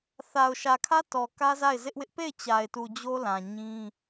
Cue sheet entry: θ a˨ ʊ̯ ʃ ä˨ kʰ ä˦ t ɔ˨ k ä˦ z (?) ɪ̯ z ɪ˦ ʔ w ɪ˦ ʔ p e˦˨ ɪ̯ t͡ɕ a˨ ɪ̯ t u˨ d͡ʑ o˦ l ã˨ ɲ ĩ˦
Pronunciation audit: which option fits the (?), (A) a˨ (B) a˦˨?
B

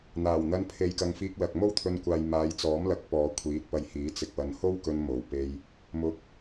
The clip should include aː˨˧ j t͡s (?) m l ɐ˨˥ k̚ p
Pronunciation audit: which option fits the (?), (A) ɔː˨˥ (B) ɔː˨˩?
A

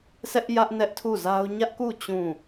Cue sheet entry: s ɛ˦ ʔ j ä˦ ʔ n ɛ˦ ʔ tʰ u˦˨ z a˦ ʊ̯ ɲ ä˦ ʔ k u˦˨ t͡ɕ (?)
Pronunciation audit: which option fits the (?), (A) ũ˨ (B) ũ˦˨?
B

